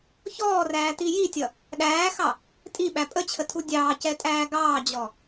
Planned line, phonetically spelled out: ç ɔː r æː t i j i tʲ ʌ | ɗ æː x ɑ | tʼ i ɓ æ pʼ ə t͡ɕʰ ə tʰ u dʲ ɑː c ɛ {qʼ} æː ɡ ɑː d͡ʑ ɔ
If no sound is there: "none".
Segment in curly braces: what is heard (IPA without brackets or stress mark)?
tʼ